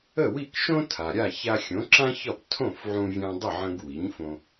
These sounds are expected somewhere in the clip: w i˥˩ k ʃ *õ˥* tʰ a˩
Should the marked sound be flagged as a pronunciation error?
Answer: no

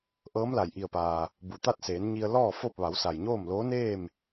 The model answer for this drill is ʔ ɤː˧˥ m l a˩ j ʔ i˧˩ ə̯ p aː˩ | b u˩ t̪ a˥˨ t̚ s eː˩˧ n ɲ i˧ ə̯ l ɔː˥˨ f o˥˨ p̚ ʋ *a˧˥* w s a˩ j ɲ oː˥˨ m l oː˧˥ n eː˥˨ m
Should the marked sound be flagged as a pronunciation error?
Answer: yes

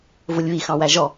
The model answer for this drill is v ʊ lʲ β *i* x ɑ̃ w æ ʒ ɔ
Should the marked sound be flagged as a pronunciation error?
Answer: no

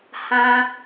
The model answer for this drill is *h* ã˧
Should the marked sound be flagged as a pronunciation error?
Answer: no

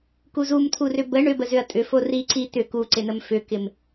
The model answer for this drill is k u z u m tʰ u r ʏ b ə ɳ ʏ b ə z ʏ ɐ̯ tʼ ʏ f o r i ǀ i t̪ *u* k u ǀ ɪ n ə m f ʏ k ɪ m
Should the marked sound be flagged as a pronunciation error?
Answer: yes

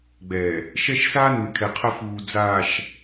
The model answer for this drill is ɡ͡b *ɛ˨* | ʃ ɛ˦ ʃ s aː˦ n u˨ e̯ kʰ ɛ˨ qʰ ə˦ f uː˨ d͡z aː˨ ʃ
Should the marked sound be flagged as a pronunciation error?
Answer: no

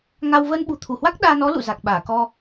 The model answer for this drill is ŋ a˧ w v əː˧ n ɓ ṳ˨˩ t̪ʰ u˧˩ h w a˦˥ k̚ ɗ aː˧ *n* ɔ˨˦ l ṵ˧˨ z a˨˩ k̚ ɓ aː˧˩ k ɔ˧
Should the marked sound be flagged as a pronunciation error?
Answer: no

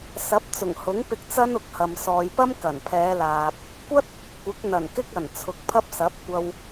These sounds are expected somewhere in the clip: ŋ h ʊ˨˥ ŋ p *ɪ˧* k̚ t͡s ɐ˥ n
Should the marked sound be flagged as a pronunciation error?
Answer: no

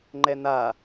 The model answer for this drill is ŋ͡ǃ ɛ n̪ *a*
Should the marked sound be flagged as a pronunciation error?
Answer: no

